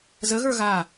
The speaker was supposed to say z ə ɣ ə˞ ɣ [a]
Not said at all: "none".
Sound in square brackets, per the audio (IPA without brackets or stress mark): a